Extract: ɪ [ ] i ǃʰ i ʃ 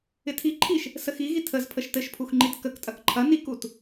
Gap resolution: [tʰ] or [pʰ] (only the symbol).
tʰ